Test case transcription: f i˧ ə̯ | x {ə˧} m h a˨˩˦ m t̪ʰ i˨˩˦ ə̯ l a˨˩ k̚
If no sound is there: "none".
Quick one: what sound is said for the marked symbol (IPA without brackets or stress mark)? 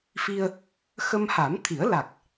ə˧